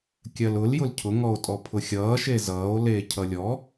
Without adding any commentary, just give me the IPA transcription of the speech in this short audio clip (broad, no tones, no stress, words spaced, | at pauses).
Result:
kʲɜlʊl jʊlcʰʊ ŋɔo̯tʼɔpʰʊxʲʌː ʃezʌːo̯ leːcʰʌlʲɔ